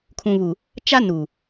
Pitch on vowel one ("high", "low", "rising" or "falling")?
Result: low